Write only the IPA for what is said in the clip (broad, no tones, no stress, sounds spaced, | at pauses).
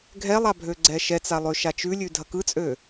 ɡʱ ɛ lˠ a bʱ ø ɡ͡ǀ ɛ ʃ ɛ t͡s a lˠ ø ʃ a t͡ʃ ʉ lʲ ʉ dʱ ɐ k ɯ t͡sʼ ø